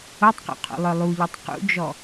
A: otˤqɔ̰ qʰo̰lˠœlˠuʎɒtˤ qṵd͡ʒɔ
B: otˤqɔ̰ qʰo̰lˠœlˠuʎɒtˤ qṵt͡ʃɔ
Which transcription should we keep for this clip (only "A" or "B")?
A